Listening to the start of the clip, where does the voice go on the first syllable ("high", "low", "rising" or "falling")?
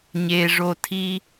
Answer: high